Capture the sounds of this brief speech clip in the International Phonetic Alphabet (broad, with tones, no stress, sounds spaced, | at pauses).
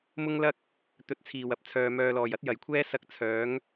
m ʊ˥ ŋ l ɐ˥ k̚ | t̪ ɵ˨˥ t̚ t͡sʰ iː˨˩ w ɐ˨˥ p̚ t͡sʰ œː˨ m œː˨ l ɔː˨˩ j ɐ˨˥ t̚ j ɐ˨˩ j kʷʰ ɛː˥ s ɐ˧ k̚ t͡sʰ œː˨˥ ŋ